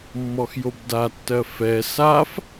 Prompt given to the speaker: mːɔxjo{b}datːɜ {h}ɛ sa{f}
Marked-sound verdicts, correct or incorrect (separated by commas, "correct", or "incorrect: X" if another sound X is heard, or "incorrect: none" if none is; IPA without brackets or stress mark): correct, incorrect: f, correct